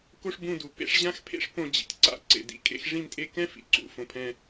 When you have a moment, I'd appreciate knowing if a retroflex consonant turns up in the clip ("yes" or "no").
yes